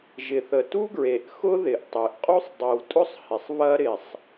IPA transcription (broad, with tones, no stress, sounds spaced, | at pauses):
ʒ ɪ˩ θ ə˩ t u˥ ɡ ɹ e˩ ʔ x ʊ˥ ð ɪ˩ ʔ tˤ e˩ ʔ qʼ u˥ sˤ dˤ i˩ w tʼ ʊ˥ sˤ h ɪ˩ sˤ β ɐ˥ ɾ ɪ˩ sˤ